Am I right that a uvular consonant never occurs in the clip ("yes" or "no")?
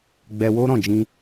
yes